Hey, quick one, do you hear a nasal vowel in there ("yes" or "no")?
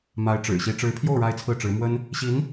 no